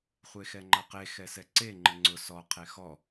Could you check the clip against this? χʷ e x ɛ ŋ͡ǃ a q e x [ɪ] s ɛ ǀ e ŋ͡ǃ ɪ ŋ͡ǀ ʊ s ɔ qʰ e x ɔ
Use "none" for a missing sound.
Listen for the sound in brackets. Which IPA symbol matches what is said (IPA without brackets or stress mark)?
ɛ